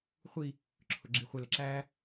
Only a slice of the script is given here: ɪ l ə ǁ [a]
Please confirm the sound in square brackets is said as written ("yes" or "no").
no